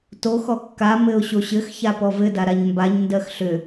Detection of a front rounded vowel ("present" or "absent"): present